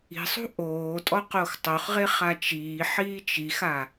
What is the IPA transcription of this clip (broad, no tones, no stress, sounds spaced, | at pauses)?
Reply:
i̤ sˤ ṳ ʔ oː tʼ ɔ q o x tˤ o χ ʁ e χ a t͡ʃ iː ħ iː t͡ʃ i x a